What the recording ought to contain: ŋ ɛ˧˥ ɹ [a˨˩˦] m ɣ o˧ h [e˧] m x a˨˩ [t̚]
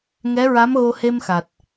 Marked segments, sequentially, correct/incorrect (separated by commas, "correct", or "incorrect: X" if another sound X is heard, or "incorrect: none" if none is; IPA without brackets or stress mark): incorrect: a˧˥, correct, correct